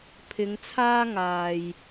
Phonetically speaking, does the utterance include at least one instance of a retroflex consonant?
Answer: no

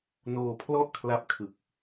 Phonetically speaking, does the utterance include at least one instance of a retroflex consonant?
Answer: no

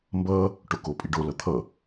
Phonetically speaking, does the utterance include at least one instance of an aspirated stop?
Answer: yes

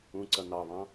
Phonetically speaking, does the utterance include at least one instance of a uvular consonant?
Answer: no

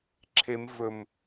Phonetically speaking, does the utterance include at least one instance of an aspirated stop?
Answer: yes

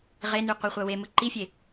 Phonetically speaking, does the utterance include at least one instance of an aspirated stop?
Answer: no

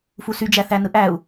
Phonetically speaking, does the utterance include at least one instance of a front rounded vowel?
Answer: yes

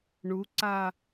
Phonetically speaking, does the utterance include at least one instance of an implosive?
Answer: no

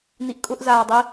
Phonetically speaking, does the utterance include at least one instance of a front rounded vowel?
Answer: no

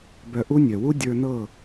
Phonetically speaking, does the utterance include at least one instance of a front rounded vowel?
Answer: yes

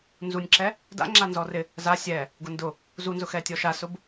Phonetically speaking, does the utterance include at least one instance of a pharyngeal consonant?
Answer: no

